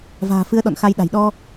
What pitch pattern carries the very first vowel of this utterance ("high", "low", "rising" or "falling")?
low